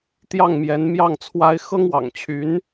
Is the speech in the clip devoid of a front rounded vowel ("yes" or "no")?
no